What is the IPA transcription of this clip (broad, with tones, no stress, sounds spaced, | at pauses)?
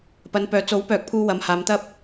p ɐ˨˧ n p œː˨ t͡s o˨˥ w p œː˨˥ k̚ pʰ uː˧ w ɐ˨˧ m h aː˨˧ m t̪ ɐ˥ p̚